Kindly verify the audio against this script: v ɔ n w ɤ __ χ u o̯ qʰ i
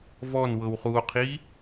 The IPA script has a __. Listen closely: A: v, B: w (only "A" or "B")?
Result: B